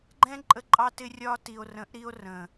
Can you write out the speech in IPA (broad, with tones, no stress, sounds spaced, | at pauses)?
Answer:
ɡ͡ǃ ɛ̃˦ ǃʼ ə˦ ǃʼ ɑ˦ t ɪ˦ rʲ ɒ˦ t i˨ o̯ r ə̃˨˦ ʔ ɾ i˦ o̯ r ə̃˨